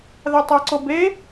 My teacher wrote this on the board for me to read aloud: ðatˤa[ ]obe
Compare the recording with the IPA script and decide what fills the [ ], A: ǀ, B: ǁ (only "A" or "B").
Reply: A